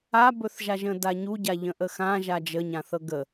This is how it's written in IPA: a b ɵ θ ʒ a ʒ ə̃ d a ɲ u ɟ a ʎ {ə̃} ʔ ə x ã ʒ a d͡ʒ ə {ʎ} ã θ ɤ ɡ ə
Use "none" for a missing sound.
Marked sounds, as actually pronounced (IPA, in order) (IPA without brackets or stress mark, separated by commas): ə̃, ɲ